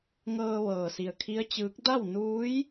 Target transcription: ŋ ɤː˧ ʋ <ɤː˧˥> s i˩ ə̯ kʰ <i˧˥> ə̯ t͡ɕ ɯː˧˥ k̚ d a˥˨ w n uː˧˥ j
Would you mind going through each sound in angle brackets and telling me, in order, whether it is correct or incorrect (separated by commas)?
incorrect, correct